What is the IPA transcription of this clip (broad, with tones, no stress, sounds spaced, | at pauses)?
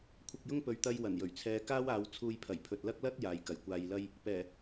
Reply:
kʷʰ ɐ˧ k̚ j ʊ˥ ŋ p ɵ˨ ɥ t̪ ɐ˧ j w ɐ˨˩ n j ɵ˨˩ ɥ t͡sʰ ɛː˧ k aː˥ w aː˨˧ w t͡sʰ uː˧ j pʰ ɐ˨˩ j pʰ ɵ˨ t̚ l ɐ˥ k̚ l ɐ˥ t̚ j aː˨ j k ɐ˨˩ j kʷ aː˧ j l ɐ˥ j | p ɛː˨˩